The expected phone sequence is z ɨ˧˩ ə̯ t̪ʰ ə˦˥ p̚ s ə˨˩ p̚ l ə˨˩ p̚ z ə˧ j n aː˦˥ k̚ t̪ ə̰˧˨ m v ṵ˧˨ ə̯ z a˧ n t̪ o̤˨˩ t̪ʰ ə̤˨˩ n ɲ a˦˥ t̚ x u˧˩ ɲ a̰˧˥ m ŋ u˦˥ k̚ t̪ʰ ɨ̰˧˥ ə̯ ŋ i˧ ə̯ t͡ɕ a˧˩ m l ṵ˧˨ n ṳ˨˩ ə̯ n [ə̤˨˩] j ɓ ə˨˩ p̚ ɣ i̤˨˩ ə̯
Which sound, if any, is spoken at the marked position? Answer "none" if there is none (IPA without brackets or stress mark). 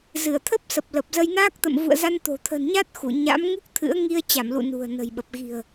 ə̤˨˩